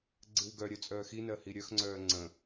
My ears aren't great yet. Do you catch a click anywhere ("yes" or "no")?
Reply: yes